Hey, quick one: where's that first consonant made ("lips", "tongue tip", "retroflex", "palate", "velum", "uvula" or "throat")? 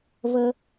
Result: lips